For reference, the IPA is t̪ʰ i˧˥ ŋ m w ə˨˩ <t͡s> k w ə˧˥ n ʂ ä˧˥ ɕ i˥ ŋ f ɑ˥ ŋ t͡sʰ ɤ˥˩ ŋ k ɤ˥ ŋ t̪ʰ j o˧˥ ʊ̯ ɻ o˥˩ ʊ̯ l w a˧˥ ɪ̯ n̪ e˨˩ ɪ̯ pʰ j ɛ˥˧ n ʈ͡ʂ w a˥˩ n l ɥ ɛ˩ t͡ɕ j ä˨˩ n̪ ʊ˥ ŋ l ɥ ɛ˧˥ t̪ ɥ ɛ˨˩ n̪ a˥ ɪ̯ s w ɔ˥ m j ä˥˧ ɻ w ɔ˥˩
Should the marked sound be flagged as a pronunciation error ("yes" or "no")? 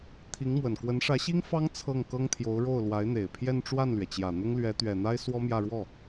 yes